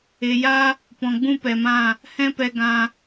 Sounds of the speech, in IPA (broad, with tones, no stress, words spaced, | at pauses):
e˨ja˦ | pɔ̃˨ɡ͡bũ˦pɛ˨mã˦˨ | hɛ̃˦ pɛ˧ɡã˧